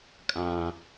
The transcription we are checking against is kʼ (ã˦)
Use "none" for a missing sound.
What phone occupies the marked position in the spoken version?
ã˦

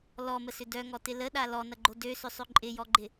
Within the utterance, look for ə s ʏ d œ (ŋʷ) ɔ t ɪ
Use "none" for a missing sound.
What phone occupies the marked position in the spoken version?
ŋ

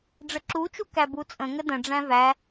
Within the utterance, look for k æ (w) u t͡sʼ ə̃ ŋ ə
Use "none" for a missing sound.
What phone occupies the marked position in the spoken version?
b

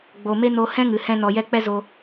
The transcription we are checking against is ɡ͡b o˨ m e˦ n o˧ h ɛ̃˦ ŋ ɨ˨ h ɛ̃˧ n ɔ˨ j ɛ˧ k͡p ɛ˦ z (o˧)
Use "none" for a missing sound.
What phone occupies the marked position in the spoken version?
o˧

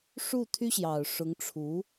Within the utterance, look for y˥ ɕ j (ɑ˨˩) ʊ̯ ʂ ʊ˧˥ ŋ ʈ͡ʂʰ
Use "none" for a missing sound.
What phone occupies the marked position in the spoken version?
ɑ˨˩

